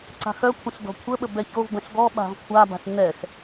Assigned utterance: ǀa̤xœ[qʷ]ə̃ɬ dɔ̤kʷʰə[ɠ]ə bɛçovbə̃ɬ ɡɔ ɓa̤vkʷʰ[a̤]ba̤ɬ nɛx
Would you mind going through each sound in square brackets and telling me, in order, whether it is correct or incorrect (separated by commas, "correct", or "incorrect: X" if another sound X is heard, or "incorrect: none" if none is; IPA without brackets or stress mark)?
incorrect: kʷʰ, incorrect: ɓ, incorrect: a